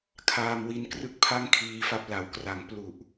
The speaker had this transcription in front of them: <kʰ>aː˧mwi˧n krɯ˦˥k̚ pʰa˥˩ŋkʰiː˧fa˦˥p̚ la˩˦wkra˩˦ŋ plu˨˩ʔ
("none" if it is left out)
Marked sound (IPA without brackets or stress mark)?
kʰ